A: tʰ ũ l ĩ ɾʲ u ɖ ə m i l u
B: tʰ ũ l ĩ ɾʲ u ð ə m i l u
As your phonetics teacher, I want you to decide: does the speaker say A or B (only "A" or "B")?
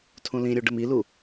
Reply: A